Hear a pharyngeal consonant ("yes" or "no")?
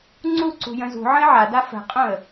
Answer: yes